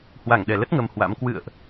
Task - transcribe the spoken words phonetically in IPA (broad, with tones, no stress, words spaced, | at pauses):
hwa˧˩ŋɗɛ˧˩lə˦˥t̚ ŋə˧mhwa̰˧˥m kwɨ̰˧˨ə̯ʔ